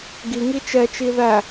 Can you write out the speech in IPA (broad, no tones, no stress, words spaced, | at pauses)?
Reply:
ɡiŋi t͡ʃɛt͡ʃi ðæ